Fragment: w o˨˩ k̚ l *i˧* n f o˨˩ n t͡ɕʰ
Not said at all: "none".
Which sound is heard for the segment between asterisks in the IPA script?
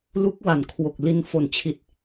i˧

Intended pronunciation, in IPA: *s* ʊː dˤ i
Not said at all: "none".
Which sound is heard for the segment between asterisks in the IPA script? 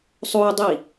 sˤ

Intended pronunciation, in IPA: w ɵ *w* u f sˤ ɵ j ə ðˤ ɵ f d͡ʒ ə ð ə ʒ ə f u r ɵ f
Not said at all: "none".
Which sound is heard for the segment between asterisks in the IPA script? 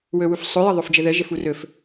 w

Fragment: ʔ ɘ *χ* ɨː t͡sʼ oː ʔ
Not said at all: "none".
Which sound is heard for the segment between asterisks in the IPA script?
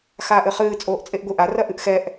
χ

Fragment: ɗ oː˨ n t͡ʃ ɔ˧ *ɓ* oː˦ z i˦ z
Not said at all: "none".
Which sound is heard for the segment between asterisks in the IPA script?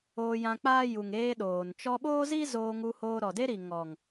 ɓ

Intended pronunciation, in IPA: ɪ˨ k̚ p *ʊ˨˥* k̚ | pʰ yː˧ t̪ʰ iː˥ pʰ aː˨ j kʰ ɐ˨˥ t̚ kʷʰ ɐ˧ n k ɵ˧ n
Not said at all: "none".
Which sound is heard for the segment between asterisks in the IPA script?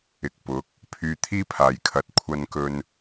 ʊ˨˥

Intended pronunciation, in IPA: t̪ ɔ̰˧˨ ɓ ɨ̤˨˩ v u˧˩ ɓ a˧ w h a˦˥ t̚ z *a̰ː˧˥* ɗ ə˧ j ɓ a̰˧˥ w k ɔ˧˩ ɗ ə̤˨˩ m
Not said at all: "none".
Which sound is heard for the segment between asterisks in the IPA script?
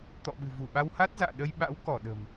a̰ː˧˨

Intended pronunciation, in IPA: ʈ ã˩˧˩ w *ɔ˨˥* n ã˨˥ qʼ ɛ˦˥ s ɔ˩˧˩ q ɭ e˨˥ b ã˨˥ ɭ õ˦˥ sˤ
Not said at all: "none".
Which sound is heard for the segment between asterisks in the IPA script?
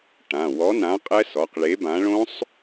ɔ˨˥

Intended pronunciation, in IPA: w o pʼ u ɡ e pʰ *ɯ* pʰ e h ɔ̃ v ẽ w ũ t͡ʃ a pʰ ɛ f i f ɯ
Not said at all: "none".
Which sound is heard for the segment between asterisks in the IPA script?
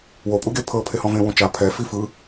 ɤ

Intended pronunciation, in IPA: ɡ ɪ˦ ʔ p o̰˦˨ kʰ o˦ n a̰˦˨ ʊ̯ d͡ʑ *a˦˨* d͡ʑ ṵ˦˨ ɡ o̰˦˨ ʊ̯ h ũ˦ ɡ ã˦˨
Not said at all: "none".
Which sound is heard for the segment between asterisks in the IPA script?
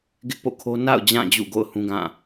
ã˦˨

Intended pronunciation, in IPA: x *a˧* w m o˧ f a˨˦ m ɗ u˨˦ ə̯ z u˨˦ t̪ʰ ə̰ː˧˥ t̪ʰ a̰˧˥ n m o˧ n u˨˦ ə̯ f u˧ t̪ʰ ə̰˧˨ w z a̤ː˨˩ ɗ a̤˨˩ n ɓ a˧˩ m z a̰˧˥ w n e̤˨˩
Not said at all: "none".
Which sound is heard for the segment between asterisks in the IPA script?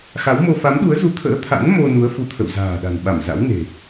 a˨˦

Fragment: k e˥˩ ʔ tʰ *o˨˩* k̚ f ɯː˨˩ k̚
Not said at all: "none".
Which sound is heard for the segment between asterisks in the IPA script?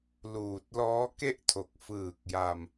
o˨˩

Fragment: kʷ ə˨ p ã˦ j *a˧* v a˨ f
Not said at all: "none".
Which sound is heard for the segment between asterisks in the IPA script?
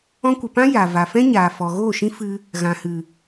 a˨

